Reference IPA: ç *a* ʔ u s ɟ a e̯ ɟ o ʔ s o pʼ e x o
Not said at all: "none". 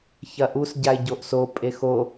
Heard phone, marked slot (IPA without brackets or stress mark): ɐ